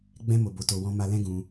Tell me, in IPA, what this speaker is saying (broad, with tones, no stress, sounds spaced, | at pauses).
ɡ͡b ɛ̃˧ m o˨ b o˨ t o˨ w ɔ̃˧ m a˧ l ɛ̃˦ ɡ ũ˧